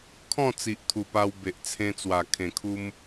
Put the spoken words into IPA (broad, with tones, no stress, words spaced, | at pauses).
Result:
kʰɔ̃˥˧t͡si˨ʔt̪ʰu˨˩ pa˧wbe˨ʔ t͡sʰẽ˧t͡swa˨˩ kʰẽ˨˩kʰu˧m